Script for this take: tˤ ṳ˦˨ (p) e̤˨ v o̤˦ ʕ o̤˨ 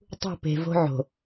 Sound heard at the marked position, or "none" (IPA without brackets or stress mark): p